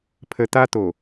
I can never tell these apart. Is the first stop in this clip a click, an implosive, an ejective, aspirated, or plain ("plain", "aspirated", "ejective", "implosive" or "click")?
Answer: aspirated